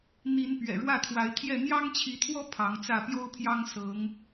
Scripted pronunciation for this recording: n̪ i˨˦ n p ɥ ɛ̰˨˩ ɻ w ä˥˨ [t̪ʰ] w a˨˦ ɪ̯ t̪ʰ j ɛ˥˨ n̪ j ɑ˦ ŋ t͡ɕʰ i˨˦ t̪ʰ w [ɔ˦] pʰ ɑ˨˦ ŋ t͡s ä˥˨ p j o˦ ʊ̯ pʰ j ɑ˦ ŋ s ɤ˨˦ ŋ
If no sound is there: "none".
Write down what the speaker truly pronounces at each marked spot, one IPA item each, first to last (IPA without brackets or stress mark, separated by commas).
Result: t̪ʰ, ɔ˦